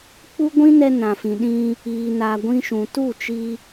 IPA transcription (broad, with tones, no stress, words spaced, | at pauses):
k͡pu˦ɡʷĩ˦nɛ˧ nã˨fĩ˨ɗĩ˧ | iː˨ na˨ ɡʷĩ˧ʃũ˨ tu˦˨t͡ʃi˧